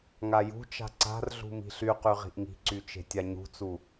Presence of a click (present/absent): present